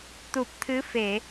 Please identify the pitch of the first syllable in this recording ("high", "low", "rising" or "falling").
low